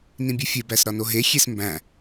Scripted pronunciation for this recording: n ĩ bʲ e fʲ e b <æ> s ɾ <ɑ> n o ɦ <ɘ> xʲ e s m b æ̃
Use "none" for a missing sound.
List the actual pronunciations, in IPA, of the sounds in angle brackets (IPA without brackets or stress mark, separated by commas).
æ, ɒ, e